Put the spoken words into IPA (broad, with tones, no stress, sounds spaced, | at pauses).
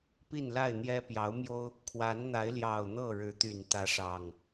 p i˥˨ n l a˥˨ ɪ̯ n̪ j ɛ˦ p j ɑ˨˦ ʊ̯ m j o˦ ʊ̯ | kʰ w a˨˦ n n̪ a˨˦ ɪ̯ l j ɑ˨˩ ʊ̯ n̪ ɤ˥˨ ɻ ɻ̩˨˦ t̪ y˨˩ n t̪ ä˨˦ ʂ ɑ˨˩ ŋ